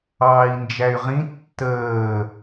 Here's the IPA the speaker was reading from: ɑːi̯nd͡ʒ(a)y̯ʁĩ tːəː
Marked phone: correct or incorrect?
incorrect